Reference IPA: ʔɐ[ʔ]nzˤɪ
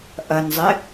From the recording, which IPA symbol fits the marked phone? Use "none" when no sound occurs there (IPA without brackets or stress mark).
none